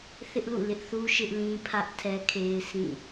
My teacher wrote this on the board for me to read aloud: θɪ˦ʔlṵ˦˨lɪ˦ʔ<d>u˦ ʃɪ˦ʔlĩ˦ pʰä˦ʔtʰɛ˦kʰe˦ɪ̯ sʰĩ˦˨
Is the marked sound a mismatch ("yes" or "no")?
yes